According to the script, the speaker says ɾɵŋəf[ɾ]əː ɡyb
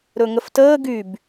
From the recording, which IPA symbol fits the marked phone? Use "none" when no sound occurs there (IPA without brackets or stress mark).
t